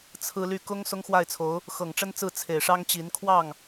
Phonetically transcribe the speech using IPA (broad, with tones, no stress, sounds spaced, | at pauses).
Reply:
t͡sʰ ɹ̩˥ l y˥˩ k ʊ˥ ŋ s ʊ˥ ŋ x w a˥˩ ɪ̯ t͡sʰ o˧˥ ʊ̯ | x ɤ˨˩ ŋ ʈ͡ʂ ə˥ n t͡s ɹ̩˥˩ t͡sʰ e˨˩ ɪ̯ ʂ ɑ˥ ŋ t͡ɕ i˧˥ n kʰ w ɑ˥˩ ŋ